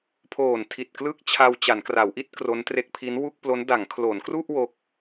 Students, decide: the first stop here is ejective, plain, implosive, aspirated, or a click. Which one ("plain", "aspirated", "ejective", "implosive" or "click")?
aspirated